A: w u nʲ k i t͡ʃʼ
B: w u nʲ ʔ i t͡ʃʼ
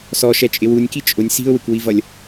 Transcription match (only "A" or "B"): A